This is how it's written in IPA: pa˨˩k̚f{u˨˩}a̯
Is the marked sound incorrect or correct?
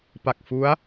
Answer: incorrect